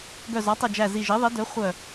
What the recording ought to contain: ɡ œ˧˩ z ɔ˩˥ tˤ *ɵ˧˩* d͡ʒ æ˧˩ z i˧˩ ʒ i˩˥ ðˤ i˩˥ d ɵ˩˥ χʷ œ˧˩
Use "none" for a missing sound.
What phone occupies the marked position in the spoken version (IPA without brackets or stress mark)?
ɵ˧˩